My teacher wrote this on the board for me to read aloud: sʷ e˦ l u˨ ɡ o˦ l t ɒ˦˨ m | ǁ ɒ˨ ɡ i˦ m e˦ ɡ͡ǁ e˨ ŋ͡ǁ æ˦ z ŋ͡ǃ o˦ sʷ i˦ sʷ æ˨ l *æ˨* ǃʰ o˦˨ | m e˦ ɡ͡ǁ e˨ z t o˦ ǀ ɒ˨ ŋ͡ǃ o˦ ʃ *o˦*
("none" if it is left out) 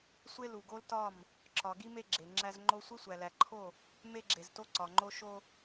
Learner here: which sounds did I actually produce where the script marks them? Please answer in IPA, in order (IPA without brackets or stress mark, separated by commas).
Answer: æ˨, o˦